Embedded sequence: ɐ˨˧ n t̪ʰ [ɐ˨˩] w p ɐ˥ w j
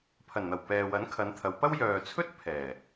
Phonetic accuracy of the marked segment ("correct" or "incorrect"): incorrect